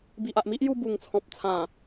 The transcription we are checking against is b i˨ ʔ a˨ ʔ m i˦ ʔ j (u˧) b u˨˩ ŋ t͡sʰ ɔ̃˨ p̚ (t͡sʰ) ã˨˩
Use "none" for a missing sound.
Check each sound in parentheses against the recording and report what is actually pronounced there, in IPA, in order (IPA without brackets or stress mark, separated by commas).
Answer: u˧, t͡sʰ